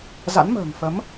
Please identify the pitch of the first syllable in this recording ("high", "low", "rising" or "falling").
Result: rising